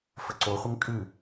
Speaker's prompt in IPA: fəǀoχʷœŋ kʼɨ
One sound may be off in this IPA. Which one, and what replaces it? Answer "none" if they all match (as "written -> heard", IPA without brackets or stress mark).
œ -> ə